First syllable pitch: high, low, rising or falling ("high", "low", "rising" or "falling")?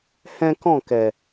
high